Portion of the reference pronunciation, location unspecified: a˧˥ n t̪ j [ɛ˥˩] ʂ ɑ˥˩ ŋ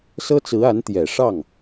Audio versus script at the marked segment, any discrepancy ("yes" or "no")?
yes